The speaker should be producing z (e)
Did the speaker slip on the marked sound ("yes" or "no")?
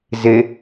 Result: no